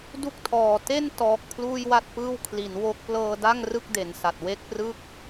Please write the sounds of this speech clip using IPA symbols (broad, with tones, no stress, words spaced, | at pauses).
du˥˩k̚tʰɔː˨˩ te˥˩n tɔː˨˩k̚pʰluː˥˩jwa˥˩t̚pɯː˥˩w kʰli˩˦nwo˦˥k̚ plɤː˧da˥˩ŋ rɯ˥˩k̚ de˩˦nsa˨˩t̚ we˥˩k̚prɯ˥˩k̚